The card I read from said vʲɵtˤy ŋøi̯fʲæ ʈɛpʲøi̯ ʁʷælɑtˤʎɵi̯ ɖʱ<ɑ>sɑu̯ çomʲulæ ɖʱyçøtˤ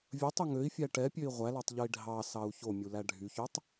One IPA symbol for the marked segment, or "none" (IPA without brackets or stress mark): ɑ